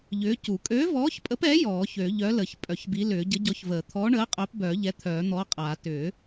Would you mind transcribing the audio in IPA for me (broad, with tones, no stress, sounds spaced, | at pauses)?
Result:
ʎ ʏː˨˥ c u˨˩˦ kʼ øː˨˥ v ɔː˨˥ ç pʼ ə˨˥ p ɛ˨˥ j ɔː˨˩˦ ç ø˨˩˦ ʎ œ˨˥ l ə˨˩˦ ç pʼ œ˨˩˦ ç b i˨˥ l ʏː˨˩˦ ɟ ə˨˥ ɟ ɔ˨˥ ç v əː˨˩˦ t̪ʰ ɔː˨˥ ɳ əː˨˥ qʼ œ˨˥ p b œː˨˩˦ ʎ ɛ˨˥ t̪ʰ œː˨˩˦ n̪ ɔː˨˥ qʼ aː˨˩˦ t ʏː˨˩˦